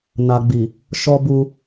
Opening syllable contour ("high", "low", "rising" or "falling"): low